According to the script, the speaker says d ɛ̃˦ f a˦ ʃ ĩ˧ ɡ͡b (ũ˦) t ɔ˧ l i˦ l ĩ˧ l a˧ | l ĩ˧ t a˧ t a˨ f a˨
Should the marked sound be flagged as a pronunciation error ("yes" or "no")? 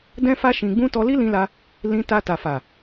no